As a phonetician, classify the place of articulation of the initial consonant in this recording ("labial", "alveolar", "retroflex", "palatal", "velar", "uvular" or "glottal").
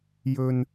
palatal